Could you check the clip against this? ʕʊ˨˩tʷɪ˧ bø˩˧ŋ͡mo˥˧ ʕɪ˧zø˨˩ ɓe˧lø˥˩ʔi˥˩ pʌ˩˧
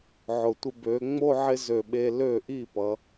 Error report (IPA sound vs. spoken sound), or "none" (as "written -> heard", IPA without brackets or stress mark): none